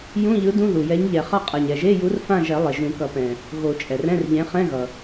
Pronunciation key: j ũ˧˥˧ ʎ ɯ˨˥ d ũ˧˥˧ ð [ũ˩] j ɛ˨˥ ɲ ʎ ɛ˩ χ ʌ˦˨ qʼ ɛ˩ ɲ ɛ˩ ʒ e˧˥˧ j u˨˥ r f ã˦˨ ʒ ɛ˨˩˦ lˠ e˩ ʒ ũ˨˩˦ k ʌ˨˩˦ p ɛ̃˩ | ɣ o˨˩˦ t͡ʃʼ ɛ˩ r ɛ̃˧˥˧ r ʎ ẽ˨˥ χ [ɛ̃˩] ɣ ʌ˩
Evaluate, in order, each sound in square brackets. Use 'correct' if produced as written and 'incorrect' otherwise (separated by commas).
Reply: incorrect, incorrect